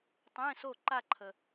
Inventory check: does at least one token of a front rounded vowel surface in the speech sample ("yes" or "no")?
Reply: no